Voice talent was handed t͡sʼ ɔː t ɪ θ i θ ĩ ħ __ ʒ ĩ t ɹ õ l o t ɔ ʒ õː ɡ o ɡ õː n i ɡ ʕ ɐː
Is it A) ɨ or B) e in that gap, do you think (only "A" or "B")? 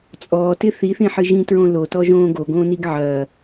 A